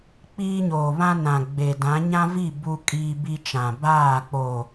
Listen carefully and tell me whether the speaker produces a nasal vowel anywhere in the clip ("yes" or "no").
yes